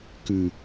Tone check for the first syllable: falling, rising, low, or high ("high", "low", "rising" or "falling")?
low